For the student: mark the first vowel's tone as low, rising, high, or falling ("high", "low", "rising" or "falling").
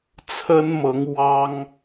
high